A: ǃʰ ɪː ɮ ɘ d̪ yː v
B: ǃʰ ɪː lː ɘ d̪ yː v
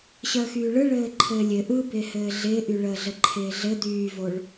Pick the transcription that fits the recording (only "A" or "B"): A